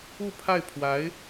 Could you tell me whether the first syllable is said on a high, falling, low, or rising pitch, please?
falling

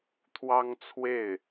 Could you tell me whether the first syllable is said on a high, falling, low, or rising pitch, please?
high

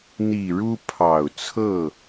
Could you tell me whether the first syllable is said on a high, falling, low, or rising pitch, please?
low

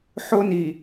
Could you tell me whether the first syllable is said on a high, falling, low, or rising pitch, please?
high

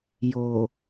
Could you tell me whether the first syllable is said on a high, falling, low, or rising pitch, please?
low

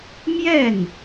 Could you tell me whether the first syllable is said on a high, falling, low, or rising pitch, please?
falling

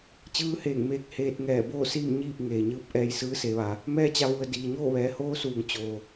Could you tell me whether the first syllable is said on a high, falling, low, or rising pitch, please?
rising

